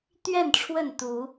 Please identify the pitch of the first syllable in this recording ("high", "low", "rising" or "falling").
falling